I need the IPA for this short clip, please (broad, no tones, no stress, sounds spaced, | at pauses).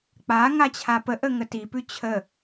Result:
k͡p a ŋ a t͡ɕʰ a p ə ʔ ə ŋ ə t i p ʉ t͡ɕʰ ə